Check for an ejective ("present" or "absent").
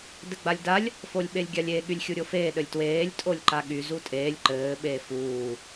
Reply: present